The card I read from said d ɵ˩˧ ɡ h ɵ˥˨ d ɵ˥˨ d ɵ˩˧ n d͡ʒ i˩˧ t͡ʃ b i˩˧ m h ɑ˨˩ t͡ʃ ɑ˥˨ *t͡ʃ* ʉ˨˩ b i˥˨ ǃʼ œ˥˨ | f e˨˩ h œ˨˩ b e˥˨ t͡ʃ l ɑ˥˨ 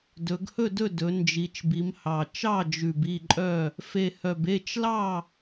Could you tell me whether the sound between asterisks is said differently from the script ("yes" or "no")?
yes